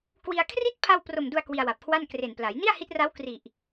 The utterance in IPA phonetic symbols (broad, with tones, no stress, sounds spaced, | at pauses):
k w i˧ a̯ kʰ r i˦˥ t̚ pʰ a˧ w p r o˨˩ m d u˧ a̯ k w i˧ a̯ w a˨˩ p̚ kʰ w a˥˩ n k r e˨˩ n p l a˩˦ j n i˥˩ a̯ h i˦˥ t̚ r a˦˥ w k r i˨˩ ʔ